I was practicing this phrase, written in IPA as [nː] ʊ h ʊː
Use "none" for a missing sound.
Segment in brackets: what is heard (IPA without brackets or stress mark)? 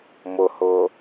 m